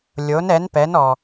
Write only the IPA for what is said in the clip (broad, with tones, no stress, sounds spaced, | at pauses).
lʲ o˩˧ n ɛ˩˧ n p ɛ˩˧ n ɔ˩